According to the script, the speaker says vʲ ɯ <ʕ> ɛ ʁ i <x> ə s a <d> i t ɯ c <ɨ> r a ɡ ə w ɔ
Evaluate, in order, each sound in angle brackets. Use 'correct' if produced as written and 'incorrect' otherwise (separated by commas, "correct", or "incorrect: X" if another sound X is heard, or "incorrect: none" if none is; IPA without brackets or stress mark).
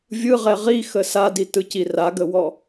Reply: incorrect: ʁ, correct, correct, incorrect: i